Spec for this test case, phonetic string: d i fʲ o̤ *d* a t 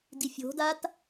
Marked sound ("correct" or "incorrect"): correct